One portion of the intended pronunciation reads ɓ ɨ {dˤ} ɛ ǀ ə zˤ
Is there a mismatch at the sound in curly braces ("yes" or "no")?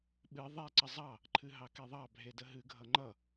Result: yes